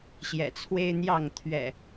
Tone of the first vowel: low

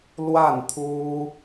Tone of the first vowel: falling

